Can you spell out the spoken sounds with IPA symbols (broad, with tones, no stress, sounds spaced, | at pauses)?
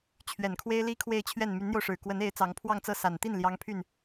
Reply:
t͡ɕʰ ɥ ɛ˨˩ n kʰ w e˥ ɪ̯ l i˥ kʰ w e˥˧ ɪ̯ t͡ɕʰ ɥ ɛ˥˩ n m y˧˥ n n̪ j o˧ ʊ̯ ʂ ɻ̩˨˩ k w ə˧˥ n e˧˥ ɪ̯ t͡s ɑ˧˥ ŋ pʰ w ɑ˥˧ ŋ t͡s ɤ˥˩ s a˨˩ n t̪ i˥˩ n l j ɑ˥ ŋ pʰ y˥˩ n